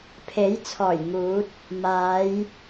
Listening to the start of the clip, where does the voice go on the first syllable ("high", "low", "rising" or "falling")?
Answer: rising